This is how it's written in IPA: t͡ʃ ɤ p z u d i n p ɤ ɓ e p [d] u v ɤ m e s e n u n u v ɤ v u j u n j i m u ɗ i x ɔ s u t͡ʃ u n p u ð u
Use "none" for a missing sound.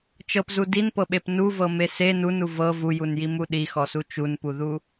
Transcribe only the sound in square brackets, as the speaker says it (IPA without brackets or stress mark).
n